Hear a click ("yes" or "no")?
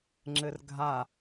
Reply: yes